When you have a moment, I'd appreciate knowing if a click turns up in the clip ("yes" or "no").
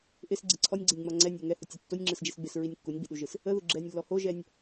yes